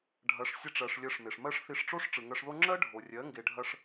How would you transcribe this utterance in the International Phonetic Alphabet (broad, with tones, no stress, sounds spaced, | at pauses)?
ɖʱ ɐ˨˦ ʂ sʲ ɐ˧ ʈ͡ʂ ɜ˨ ʂ lʲ ɜ˧ ʂ m e˨ ʂ m ɜ˦ ʂ θ i˧ ʂ ʈ͡ʂ o˦ ʂ ʈ͡ʂ ɯ˨ ŋ ɜ˧ ʂ ð o˦ ŋ͡ǁ ɜ˦ ɖʱ o˨ rʲ ɜ˨˦ ŋ ɡ e˧ ɖʱ ɐ˦ ʂ